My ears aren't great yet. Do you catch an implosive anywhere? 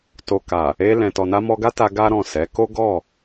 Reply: no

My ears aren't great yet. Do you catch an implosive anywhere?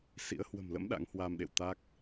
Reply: yes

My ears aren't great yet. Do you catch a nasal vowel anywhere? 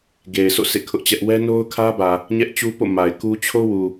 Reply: no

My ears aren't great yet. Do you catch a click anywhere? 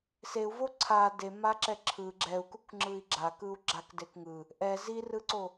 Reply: yes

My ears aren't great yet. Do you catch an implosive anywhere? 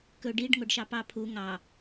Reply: no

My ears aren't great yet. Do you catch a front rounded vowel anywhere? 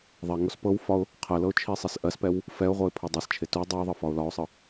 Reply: no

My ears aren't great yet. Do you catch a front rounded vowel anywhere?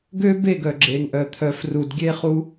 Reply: yes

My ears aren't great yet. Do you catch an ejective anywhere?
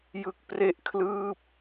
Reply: no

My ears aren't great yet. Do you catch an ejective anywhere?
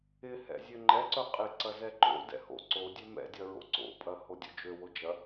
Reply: yes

